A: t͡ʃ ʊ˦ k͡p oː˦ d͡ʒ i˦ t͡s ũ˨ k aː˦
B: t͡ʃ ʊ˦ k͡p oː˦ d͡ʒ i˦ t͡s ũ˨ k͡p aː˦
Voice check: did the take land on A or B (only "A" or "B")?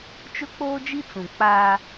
B